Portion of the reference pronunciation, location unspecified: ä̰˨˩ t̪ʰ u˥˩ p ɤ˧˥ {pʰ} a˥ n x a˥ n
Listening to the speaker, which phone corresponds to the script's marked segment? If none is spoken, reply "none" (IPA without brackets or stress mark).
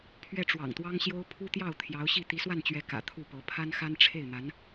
pʰ